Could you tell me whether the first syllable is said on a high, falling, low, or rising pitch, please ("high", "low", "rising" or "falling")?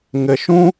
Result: low